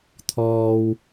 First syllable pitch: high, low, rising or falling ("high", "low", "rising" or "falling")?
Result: low